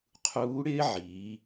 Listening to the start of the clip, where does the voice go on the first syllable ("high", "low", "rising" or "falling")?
rising